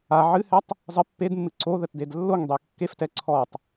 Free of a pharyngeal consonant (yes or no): no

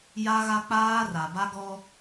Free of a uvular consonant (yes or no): yes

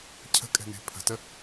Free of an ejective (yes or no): no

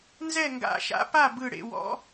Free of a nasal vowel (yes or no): yes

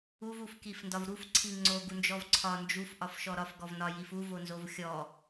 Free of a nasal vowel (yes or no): yes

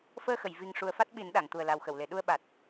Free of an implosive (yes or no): no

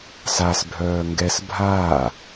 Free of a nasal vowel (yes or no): yes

